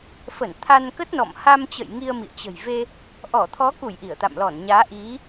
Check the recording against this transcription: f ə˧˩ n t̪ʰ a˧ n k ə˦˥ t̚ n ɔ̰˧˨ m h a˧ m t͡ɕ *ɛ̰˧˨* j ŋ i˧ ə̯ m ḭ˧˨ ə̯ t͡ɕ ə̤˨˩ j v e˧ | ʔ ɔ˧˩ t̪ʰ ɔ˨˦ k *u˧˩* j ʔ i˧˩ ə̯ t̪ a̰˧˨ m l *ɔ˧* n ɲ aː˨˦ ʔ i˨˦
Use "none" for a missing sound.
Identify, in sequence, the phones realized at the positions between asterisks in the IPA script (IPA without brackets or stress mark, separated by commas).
ə̰˧˨, u˧˩, ɔ˧˩